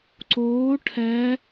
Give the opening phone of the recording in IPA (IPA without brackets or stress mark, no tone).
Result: ǀ